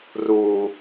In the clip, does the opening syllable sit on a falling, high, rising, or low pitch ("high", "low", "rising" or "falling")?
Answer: low